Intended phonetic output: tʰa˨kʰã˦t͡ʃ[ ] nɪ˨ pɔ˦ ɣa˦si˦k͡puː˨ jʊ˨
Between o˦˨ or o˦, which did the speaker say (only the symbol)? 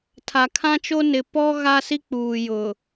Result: o˦